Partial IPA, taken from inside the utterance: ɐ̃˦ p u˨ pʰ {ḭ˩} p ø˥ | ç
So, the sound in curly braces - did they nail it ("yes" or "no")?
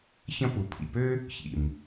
yes